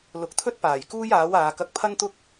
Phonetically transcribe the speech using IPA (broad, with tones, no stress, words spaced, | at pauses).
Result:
lʊ˨˥k̚t̪ʰɵ˥t̚paː˨˩j kuː˥jaː˨˥waː˨˧ kɐ˧k̚pʰɐ˥nt̪ʊ˥k̚